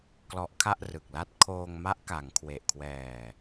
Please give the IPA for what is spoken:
k l ɔ˦˥ ʔ kʰ a˥˩ ʔ r ɯ˨˩ k̚ l a˥˩ t̚ kʰ oː˧ ŋ m a˦˥ ʔ k a˩˦ ŋ kʰ w e˨˩ ʔ kʰ w ɛː˨˩

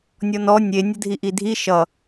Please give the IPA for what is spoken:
nʲ ɔ n ɔ nʲ e nʲ ə dʱ i ʔ i dʱ i ʃ ʌ

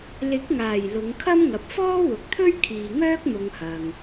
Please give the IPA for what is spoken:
l ɪ˨˥ k̚ ŋ aː˨˩ j l ʊ˨˧ ŋ kʰ ɐ˥ m ŋ ɐ˨ p̚ f ɔː˥ w ʊ˨ k̚ t̪ʰ ɵ˥ ɥ kʰ iː˨ ŋ œː˥ k̚ m ʊ˨ ŋ h ɐ˨ ŋ

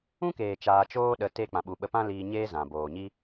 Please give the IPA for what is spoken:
ũ˦ k eː˨ t͡ʃ aː˧ t͡ʃ oː˦ ɗ ə˨˦ t e˦ k͡p ã˨ ɓ u˨ ɓ ə˧ p ã˦ l iː˧ ɲ eː˦ z ã˨ b oː˨ ɲ i˦

